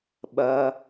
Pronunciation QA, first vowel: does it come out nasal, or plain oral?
oral